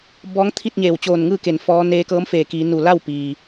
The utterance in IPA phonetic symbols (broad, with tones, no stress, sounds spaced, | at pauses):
b ɔː˧˥ ŋ t̪ʰ i˥˨ t̚ ɲ eː˧˩ w t͡ɕ oː˧˩ n ŋ ɯː˥˨ k e˧˩ n f ɔː˧˥ n eː˧ k ɤː˧˥ m f eː˧˩ k iː˩˧ n u˧˩ l a˥˨ w p iː˩